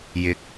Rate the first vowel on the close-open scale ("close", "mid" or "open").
close